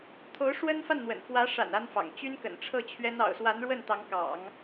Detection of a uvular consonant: absent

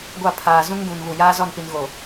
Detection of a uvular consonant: absent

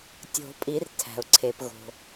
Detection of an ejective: present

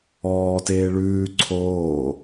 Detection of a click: present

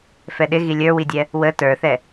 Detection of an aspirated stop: absent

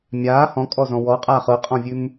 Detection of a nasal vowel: present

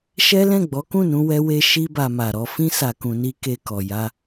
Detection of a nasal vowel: present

